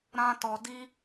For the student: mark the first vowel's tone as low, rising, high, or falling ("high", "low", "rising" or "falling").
high